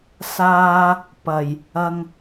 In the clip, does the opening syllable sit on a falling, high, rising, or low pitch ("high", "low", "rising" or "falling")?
high